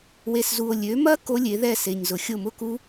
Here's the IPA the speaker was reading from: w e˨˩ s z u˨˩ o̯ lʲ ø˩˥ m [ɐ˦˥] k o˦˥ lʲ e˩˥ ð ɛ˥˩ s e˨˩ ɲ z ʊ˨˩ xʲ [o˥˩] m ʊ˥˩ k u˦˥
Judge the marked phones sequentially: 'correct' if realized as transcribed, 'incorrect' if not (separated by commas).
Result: correct, correct